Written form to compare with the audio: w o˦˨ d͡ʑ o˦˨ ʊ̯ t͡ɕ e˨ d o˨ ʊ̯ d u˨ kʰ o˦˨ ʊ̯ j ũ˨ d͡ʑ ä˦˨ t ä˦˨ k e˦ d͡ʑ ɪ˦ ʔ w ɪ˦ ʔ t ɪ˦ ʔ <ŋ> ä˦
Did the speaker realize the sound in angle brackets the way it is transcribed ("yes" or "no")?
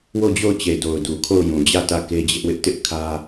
no